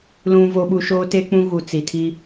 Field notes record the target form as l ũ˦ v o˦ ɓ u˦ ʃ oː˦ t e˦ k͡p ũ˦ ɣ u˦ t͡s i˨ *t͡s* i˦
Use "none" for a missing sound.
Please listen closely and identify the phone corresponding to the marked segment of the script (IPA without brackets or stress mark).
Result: tʰ